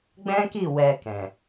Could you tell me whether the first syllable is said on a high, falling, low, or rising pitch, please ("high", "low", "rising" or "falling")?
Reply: high